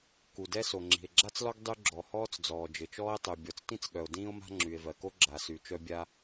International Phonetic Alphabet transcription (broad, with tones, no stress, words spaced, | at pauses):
ku˩dɛ˥ so˩ŋ͡ǁi̤˩e̯ɡ͡ǁa˥t͡slɔ˥ɡ dˤy˥ ɡ͡ǁɔ˩hɔː˥t͡s d͡zɔː˩d͡ʒɘ˩t͡ʃɔː˥e̯tˤy˩ bʲɔ˩t͡stĩ˥t͡sɠœ˩o̯ dĩː˥o̯ma̤˥ŋ͡ǁy˩e̯ vɜ˩ko˥ ɡ͡ǁa˩sy˩ t͡ʃœ˥bʲa˥